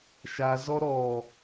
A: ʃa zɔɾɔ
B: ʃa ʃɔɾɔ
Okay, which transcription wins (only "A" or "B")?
A